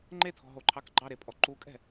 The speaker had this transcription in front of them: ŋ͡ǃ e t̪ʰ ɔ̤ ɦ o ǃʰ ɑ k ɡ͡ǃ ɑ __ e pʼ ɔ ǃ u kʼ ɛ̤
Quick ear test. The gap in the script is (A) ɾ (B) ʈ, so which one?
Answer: A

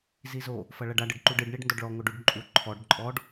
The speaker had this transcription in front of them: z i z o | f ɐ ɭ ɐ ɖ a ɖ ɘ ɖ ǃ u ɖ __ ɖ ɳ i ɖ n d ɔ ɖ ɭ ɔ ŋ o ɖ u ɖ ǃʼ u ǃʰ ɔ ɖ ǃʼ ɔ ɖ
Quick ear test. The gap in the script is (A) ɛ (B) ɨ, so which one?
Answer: B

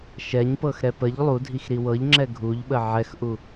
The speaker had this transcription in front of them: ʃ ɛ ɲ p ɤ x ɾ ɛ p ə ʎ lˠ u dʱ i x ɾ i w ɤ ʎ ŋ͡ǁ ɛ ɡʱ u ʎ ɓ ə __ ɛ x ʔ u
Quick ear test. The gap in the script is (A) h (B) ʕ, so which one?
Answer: B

